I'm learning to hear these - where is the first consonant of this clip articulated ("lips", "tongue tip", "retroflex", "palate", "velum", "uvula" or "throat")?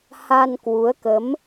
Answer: throat